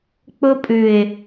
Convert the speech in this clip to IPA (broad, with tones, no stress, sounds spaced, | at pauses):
k͡p ʊ˧ pʼ ʉ˨ ɪ̯